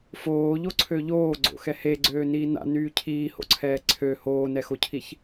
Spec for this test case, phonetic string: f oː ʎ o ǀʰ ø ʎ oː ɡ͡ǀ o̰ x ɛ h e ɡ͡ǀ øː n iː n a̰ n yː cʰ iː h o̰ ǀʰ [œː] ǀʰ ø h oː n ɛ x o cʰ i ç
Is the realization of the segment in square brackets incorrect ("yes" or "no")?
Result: yes